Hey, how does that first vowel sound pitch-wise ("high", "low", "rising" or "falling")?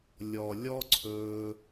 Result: low